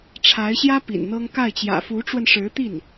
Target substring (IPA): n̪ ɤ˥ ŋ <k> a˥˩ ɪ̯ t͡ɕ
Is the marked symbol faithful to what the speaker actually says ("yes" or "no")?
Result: yes